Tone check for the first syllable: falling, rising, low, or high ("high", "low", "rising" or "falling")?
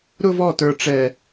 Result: high